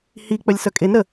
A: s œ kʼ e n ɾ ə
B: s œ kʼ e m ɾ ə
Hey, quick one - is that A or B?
A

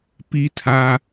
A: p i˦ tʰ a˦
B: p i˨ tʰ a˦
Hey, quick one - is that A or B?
A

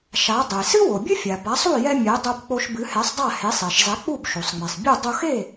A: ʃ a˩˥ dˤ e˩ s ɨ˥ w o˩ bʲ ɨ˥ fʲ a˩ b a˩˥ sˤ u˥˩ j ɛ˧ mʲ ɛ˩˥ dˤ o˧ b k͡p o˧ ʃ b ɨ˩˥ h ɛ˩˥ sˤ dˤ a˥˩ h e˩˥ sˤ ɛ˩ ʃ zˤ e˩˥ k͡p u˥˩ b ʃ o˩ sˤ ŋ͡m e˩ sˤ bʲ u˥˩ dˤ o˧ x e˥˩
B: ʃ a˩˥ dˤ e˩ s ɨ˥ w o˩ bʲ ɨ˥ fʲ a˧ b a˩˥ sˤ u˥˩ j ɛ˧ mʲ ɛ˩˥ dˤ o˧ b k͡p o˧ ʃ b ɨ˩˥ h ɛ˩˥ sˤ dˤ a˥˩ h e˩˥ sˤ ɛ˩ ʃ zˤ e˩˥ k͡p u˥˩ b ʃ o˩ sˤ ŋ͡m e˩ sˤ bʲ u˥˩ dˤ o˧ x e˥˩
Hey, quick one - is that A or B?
A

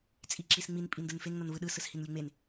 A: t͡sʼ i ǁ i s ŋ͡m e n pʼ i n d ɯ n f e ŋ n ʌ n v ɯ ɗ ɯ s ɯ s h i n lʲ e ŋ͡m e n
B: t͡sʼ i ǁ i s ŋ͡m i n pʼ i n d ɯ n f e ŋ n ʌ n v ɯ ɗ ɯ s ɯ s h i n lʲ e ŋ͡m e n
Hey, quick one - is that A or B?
B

